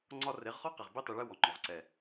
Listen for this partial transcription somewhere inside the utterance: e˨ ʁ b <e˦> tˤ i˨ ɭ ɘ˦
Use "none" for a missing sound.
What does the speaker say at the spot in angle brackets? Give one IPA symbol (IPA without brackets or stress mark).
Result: i˦